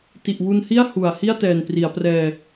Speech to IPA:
t i˨˩ ʔ w u˧ n h i˥˩ a̯ h u˨˩ a̯ h i˥˩ a̯ t ɛː˨˩ n p r i˩˦ a̯ p r ɛː˧

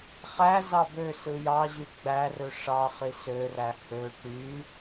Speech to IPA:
χ æ z ɑ b ø s ɯ j ɑ ʑ y ɡ͡b æ r ø ʂ ɑ χ i s ø r æ h ø ʈ y

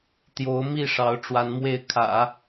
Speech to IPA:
t̪ j o˧˥ ʊ̯ m i˥˩ ʂ ɑ˧˥ ʊ̯ ʈ͡ʂ w a˧˥ n m w e˥˩ ɪ̯ kʰ ä̰˨˩˦

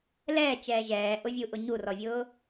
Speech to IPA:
l ɛː t͡ʃ ɛː ʒ ɛː ʔ ʊ vʲ u ʔ ʊ ɲ u r ɔ vʲ ʊː

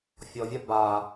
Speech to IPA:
fʲ ɔ vʲ a b a

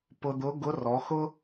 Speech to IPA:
p ʊ˧ d̪ ʊ˧˥ ɡ ʊ˧˥ r ɔ˩˧ x ʊ˥

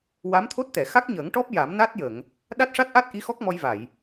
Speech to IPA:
w a˧˥ m t̪ʰ o˦˥ t̚ t̪ ɛ˨˩˨ x a˦˥ k̚ ɲ əː˨˩˦ ŋ ʈ ɔ˦˥ p̚ j a˨˩˦ m n a˦˥ t̚ j ə˨˩˨ ŋ | ɗ a˦˥ t̚ ʂ a˦˥ t̚ ʔ a˦˥ t̚ ʔ i˧˥ x ɔ˦˥ k̚ m ɔ˧ j v a˨˩˨ j

